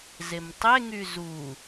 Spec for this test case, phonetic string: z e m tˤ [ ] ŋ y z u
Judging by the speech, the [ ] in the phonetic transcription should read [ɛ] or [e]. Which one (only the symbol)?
e